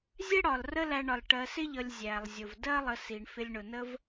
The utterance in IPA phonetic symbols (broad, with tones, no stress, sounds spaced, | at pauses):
zʲ ɛ˥ ɽ ɒ˩ l r ə˦ l æ˨ ɳ ɒ˩ l ʈ ɜ˨ s ɪ˥ ʎ ʌ˨ lʲ zʲ æ˩ lˠ zʲ ʊ˩ v d ɜ˥ lˠ ə˨ s i˩ ɳ f ɪ˨ lʲ ɳ ʊ˩ n ə˦ v